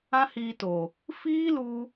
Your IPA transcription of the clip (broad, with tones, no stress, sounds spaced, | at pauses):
ã˦ h iː˧ t o˨ | f iː˦ l u˧